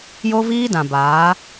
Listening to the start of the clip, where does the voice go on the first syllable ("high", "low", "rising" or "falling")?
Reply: high